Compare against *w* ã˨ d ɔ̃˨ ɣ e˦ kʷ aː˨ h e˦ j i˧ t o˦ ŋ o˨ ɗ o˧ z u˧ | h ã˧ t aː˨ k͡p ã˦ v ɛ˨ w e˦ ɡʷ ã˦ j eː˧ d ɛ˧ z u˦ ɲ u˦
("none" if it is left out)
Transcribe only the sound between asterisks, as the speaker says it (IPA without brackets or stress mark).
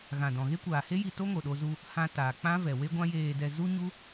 ɣ